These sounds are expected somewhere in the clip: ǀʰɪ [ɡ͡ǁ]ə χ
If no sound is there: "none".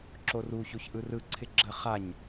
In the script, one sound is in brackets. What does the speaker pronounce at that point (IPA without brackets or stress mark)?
ɡ͡ǁ